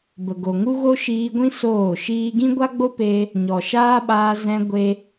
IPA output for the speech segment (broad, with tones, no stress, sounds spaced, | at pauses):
b ə˨ ɡ o˨ ŋ u˦ ɣ o˦ ʃ iː˧ ɡʷ ĩ˦ s oː˦˨ ʃ iː˦ ɡ ĩ˦ ɡʷ a˦ ɡ͡b o˦ p e˧ | ɲ ɔ˨ ʃ aː˦ ɓ aː˧ z ɛ̃˧ ɡʷ e˧